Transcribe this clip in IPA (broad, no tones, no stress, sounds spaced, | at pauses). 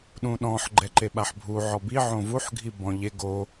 ɗ ũ ɗ ɔ̃ ħ ɡ͡ǃ ɛ ǃ e ɓ a ħ bʱ u ʕ ɔ b i ʕ õ v u ħ ɡʱ i b ɔ̃ ʎ e ɡ o